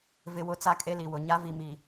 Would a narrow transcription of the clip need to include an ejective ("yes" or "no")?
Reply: yes